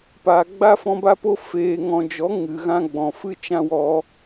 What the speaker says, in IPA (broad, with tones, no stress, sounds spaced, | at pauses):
p aː˨ ɡ͡b a˦ f ɔ̃˧ b a˦ p o˦ f eː˧ ŋ ɔ̃˧ d͡ʒ ɔ˨˦ ŋ ɨ˨ ɣ ã˦ ɡ͡b ɔ̃˨ f ɨ˦ t͡ʃ ã˦ w ɔ˧